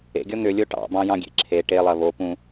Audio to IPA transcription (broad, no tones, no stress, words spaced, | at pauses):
ḛɡʲɔ n̪ʏlʲo ʈɑ̰bɑ̃jɑ̃ɡʲḛ ǁʰe ʈelˠɐ βopũ